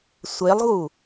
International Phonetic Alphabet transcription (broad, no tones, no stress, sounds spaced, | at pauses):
sʷ e lˠ ɣ u